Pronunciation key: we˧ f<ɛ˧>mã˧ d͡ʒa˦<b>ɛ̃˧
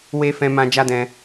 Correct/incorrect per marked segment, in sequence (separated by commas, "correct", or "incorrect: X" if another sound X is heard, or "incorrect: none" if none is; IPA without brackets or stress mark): incorrect: ɛ̃˧, incorrect: d